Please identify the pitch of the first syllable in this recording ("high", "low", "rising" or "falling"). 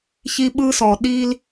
high